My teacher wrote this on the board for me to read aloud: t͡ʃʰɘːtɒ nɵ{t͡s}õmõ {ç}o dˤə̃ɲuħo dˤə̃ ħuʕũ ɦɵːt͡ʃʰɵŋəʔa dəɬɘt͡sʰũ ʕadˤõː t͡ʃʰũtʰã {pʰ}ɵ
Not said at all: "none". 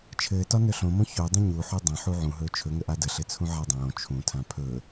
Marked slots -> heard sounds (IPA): ɬ, ç, pʰ

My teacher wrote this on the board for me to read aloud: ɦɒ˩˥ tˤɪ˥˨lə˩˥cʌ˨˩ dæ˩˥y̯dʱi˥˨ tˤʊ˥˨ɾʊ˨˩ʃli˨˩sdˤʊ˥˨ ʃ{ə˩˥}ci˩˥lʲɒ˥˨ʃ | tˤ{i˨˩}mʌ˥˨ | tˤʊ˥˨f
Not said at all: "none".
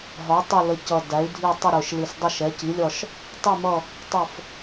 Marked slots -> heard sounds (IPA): ɛ˩˥, i˥˨

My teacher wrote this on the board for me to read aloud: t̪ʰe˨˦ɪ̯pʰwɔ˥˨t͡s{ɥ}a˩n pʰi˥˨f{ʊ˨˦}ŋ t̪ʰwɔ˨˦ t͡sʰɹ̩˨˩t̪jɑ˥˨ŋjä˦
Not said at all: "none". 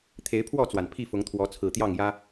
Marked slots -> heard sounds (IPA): w, ʊ˨˦

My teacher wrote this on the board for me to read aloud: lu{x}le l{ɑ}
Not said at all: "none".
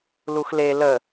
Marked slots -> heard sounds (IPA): x, ə

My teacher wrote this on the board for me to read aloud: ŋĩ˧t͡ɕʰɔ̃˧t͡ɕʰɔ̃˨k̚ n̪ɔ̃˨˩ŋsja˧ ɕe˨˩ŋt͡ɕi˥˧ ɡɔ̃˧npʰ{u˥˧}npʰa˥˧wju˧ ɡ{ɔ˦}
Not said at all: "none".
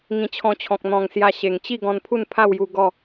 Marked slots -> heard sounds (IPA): u˥˧, ɔ˥˧

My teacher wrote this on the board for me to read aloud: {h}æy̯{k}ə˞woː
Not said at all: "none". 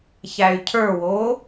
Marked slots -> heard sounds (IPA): ç, cʰ

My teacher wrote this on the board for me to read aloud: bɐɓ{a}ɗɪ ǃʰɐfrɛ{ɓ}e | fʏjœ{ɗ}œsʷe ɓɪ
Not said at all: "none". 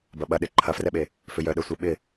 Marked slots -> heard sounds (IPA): ɐ, ɓ, ɗ

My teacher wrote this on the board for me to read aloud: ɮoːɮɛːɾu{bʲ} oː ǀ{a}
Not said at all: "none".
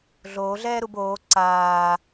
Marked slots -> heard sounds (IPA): b, aː

